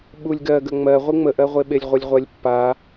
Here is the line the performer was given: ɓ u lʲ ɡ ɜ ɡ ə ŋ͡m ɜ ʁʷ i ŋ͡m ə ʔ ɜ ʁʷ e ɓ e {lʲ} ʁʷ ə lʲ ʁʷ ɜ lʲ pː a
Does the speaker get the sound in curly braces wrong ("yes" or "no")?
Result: no